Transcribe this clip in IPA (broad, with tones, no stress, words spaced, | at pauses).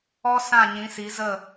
ɔ˦sã˦˨ ɲĩ˨˦si˨˦ zə˦˨